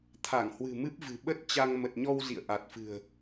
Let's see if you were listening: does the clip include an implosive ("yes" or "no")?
yes